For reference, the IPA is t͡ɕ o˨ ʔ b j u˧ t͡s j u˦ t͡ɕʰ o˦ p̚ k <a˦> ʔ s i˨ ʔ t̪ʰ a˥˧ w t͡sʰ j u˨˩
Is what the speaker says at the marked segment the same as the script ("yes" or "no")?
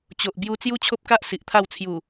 yes